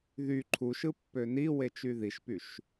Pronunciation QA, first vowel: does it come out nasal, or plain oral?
oral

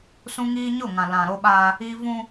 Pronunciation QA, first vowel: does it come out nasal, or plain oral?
nasal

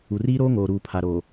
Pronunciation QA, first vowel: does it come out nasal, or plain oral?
oral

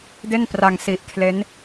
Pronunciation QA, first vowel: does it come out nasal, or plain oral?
oral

